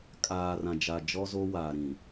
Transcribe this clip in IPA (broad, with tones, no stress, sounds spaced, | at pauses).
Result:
kʼ aː˨ r ã˨ d͡ʒ a˨ d͡ʒ ɔ˦ z o˦ w aː˨ ɾ ĩ˨